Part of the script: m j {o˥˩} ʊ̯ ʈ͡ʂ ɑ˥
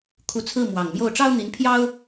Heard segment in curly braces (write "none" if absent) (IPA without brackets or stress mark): o˥˩